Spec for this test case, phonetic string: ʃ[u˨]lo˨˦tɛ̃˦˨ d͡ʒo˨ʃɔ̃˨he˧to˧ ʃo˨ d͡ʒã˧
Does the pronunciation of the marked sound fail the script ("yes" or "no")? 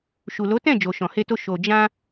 no